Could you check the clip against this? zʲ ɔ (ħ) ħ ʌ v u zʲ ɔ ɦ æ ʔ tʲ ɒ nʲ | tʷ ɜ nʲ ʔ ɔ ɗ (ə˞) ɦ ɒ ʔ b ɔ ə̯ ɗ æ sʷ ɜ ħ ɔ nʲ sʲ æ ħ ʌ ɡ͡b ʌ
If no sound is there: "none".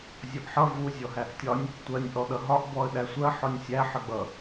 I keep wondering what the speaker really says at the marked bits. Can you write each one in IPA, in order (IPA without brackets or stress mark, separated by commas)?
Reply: ʔ, ʌ